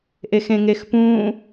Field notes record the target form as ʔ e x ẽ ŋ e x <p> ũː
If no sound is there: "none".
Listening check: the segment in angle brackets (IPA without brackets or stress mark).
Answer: p